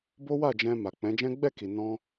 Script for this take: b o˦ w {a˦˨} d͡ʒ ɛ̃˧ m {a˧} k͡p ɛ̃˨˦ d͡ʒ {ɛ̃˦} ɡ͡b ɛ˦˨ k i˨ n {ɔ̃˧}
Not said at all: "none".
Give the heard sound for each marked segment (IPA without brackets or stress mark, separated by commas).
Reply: a˦˨, a˨, ɛ̃˦, ɔ̃˧